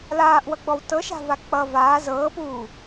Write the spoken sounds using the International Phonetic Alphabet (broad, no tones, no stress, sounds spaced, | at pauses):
l aː ʔ w ʌ ɡ͡b ɔ w t ɤ ʃ a̤ v a k͡p ʌ v aː z ɤː p uː